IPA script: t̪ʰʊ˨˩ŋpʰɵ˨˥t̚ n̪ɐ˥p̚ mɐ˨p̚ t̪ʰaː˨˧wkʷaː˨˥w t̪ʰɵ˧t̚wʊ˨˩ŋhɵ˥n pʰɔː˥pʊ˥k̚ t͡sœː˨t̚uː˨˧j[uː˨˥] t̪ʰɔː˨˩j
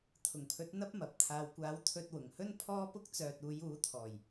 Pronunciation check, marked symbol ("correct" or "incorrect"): correct